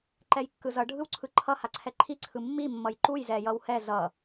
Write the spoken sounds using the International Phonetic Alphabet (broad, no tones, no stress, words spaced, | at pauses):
ǃɛjkːɯzʌ ɖʱɯwǀʰɯǃʰʌ haǀʰɛǃʰi ǀʰɯmːi mːʌjǃuj zɛjʌwhɛ zʌ